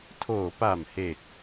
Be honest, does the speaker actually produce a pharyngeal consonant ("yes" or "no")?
no